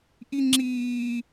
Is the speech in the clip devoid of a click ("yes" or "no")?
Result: no